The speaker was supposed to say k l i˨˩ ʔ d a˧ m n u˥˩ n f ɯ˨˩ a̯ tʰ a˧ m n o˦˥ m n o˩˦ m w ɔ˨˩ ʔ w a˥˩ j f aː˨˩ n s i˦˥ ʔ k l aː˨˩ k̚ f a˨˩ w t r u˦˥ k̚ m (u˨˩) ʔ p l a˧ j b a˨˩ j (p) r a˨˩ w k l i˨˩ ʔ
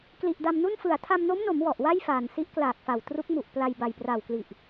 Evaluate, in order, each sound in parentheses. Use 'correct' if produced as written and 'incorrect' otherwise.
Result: correct, correct

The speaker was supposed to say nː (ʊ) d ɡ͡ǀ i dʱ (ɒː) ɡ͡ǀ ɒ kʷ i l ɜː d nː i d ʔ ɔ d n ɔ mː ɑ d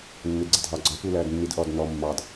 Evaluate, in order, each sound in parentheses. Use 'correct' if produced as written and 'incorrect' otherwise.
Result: correct, correct

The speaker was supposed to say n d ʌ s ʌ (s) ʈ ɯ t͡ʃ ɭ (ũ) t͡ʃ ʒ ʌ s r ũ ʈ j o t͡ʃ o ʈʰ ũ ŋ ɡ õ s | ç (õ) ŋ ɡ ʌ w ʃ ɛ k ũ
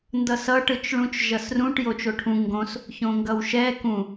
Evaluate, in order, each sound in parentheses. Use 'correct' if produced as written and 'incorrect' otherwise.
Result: incorrect, correct, correct

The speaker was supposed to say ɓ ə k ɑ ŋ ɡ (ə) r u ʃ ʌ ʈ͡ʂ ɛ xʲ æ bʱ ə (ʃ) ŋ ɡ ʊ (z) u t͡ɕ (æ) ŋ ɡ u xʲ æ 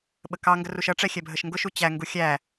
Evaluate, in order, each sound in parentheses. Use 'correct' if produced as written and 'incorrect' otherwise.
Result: correct, correct, incorrect, correct

